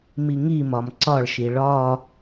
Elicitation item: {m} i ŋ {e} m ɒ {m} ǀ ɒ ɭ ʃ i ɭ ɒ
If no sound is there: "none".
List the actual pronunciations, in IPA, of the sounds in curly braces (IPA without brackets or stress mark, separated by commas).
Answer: m, i, m